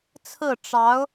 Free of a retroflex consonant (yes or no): no